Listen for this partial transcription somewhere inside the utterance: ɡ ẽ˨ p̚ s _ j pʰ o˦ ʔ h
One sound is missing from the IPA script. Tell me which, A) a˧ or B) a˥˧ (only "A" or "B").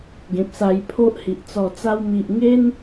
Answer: A